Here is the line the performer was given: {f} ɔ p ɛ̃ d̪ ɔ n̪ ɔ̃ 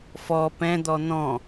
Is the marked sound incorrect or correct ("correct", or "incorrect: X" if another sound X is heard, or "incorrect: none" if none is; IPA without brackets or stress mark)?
correct